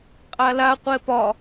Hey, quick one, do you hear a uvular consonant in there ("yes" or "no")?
yes